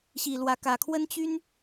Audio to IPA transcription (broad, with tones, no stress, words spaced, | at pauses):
ɕi˨˩lwä˨˦kä˨˩ kʰwə˦nt͡ɕy˦n